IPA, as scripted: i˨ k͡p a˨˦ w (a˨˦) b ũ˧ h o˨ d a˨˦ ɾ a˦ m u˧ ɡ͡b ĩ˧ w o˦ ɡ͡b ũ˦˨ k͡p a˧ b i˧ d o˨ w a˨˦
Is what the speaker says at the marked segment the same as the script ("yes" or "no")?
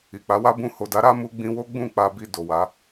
no